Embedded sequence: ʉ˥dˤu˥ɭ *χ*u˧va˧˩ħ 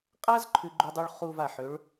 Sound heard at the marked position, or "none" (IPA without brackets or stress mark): χ